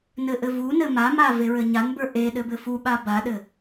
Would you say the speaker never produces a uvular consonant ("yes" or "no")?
yes